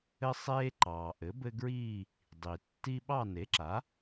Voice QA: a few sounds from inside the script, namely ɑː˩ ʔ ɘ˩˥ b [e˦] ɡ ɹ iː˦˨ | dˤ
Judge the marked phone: incorrect: ɘ˦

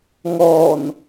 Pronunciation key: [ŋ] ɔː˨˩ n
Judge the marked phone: correct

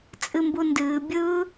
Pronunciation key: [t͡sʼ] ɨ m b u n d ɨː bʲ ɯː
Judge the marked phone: correct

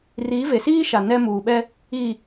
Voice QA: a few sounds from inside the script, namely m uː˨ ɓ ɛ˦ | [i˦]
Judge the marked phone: incorrect: i˨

